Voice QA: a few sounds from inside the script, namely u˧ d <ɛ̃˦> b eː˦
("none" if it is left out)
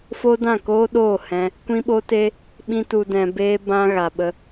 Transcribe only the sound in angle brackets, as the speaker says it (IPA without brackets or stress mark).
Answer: ɛ̃˧